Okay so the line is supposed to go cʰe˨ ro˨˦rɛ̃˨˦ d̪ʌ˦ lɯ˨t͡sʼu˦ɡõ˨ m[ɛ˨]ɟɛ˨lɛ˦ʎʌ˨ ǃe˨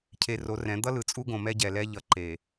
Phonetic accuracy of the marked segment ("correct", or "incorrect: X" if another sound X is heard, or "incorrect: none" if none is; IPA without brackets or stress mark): incorrect: ɛ˦